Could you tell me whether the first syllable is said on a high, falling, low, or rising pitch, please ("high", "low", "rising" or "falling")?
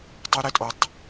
high